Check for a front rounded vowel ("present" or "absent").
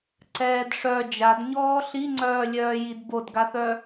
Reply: present